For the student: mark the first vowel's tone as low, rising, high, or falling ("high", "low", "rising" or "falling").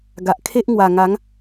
low